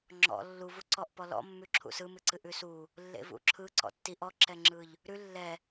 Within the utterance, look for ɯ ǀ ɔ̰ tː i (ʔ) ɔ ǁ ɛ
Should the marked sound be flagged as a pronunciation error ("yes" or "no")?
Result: no